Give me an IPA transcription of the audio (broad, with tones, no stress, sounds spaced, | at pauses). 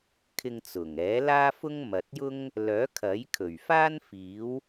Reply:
kʰ ɪ˧ ŋ t͡s ʊ˨˩ ŋ ɛː˨˥ l aː˥ f ʊ˥ ŋ m ɐ˨ t̚ j ʊ˥ ŋ | l œː˨˥ kʰ ɐ˨˥ j kʰ ɵ˨˩ ɥ f aː˥ n f iː˨˥ w